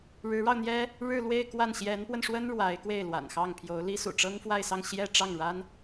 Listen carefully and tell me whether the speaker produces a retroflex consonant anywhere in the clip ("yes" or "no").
yes